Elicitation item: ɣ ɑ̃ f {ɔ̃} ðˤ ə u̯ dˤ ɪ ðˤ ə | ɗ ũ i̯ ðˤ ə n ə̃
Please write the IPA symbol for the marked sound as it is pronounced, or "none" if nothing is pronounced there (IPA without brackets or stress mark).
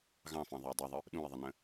ɑ̃